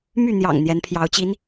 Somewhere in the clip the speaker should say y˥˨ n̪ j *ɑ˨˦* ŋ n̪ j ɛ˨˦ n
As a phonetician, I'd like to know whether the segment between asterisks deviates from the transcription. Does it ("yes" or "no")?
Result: yes